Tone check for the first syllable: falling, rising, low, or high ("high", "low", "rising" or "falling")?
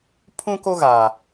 high